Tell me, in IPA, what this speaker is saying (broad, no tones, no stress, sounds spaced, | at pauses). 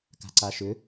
k a̤ ǀ a ʃ ʏ